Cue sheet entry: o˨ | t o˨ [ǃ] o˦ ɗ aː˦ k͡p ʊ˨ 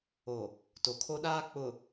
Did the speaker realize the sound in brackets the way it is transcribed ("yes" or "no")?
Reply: no